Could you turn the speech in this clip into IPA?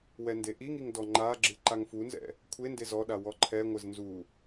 w ɛ n d e ʔ i ŋ i ŋ d ɔ ŋ͡ǃ a ɡ͡ǁ ɨ ǃ a ŋ f u n z ɛ̰ | kʷʰ e n d e z ɔ ɗ a w ɔ ǃʰ ɛ ŋʷ ɘ z n z u

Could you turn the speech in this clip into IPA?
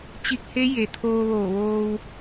t͡ɕ i˧ k̚ h e˧˥ j e˩ t̪ʰ oː˧ ʋ oː˧˩ ʋ oː˧ w

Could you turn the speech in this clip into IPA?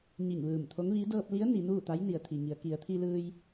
ɲ i˧˩ ŋ ʋ ɯː˧˩ m t̪ʰ o˧˥ ŋ ʋ i˧˥ d ɤː˧ p̚ l i˧˥ ə̯ n i˩˧ n uː˥˨ t̪ a˧˥ j n i˩ ə̯ t̪ʰ i˩ ŋ i˩˧ ə̯ k i˩˧ ə̯ t̪ʰ i˧ l ɯː˧ j

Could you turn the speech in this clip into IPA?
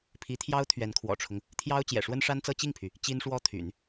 pʰ i˧˥ t̪ʰ j ɑ˥ ʊ̯ t̪ʰ ɥ ɛ˧˥ n kʰ w ɔ̰˨˩ ʈ͡ʂʰ ʊ˦ ŋ | t̪ʰ j ɑ˥ ʊ̯ t͡ɕ j ɛ̰˨˩ ʂ w ə˥ n ʂ a˥ n t͡s ɤ˥ t͡ɕ i˥˩ ŋ pʰ y˩ | t͡ɕ i˥ n ʂ w ɔ˥ t̪ʰ y̰˨˩˦ n

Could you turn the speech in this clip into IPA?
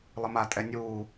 lˠ ə m a tʼ ɛ nʲ uː

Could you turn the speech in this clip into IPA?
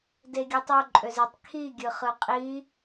d e ɡʲ ɯ tˤ o ǃʼ ø z e tˤ kʰ i ɡʲ ɯ χ ɯ qʼ i

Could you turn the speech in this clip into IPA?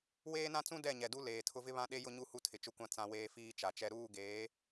w eː˦ n ã˦ t͡s ũ˦ d ɛ˦˨ ɲ ɛ˨ d u˦ l eː˨ tʰ ʊ˦ v ɪ˦ β ã˦ ɗ e˦ j ʊ˦ ɲ u˦ h u˦ tʰ ɪ˨ t͡ʃ ʊ˦ kʷ ã˦ t͡s ã˦ w eː˦ f iː˦ t͡ʃ a˨ t͡ʃ ɛ˦ ɾ uː˦˨ ɡ eː˨˦

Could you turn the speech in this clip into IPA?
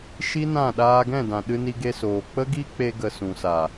ʃ i˦ n ã˦˨ ɗ aː˧ ɡ ɛ̃˦˨ d ã˨ ɗ ɨ˧ n i˧ ɡ e˧ s oː˨ k͡p ə˦ ɡ i˦ k͡p e˧ ɡ ə˨ s ũ˨ s a˨

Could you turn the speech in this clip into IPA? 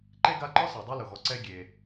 ǃ e˥ ɡ a˦ ǃ ɔ˥ s e˩ dˤ e˥ l ʊ˩ ɣ ɔ˨ ǀ ɛ˦ ɡʲ e˩

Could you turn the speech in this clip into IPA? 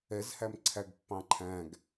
ɛ z h æ m ǀʰ æ ɡ pː ɑ̃ ǃʰ æ̃ ɡ

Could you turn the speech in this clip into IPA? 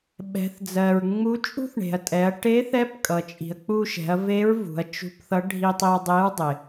ɓ ɛ̤˩˧ θ d͡z ɜ˩ ɹ ŋ͡m u˧˥ t͡ʃʼ ṳ˥ θ ɳ e̤˩ ɐ̯ tʼ ɛ˩˧ ɐ̯ ʈ e˧˥ θ ɛ˧˥ p kʼ ʌ˩ t͡ʃʼ i̤˩ ɐ̯ k͡p u˧ ʃ ɛ̤˩˧ ɐ̯ v e˧˥ ɹ v ṳ˩˧ ɐ̯ t͡ʃ ṳ˧˥ p θ ʌ˧˥ ɖʱ i˧ tˤ i˧ ɐ̯ dˤ e˧˥ ɹ dˤ ɪ˩

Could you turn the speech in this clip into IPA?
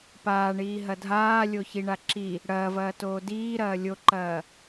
p aː ɳ iː ɦ ɐ dʱ aː lʲ o ç i ɳ a ǁ i | ɽ ɐː v ɐː t oː d iː ɾ ɐː lʲ o ǃ ɐː

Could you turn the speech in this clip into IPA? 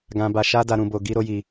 ɡ ã˧ b a˧ ʃ a˦ d a˧ ɾ ũ˧ b o˧ ɡ i˧ ɾ o˧ j i˧

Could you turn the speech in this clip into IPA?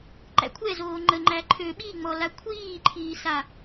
ǃ æ̰ kʷʰ ɛ z oː ŋ͡ǃ ə ŋ͡ǃ æ ǃʰ ø ɓ i ŋ͡m ɔ l a kʷʰ iː ǃʰ iː s a

